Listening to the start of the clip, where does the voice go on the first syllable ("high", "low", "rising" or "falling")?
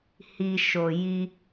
low